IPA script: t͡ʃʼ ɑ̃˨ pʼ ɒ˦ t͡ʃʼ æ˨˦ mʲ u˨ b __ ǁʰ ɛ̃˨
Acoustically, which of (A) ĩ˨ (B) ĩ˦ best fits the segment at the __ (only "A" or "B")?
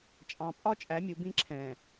B